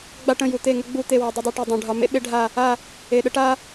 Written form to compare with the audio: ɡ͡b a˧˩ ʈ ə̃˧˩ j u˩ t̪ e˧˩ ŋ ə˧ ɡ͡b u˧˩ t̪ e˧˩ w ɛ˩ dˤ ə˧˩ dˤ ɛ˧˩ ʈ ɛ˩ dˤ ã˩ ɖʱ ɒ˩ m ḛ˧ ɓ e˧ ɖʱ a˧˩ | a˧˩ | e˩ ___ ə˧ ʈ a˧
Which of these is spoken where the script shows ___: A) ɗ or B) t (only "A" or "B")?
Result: A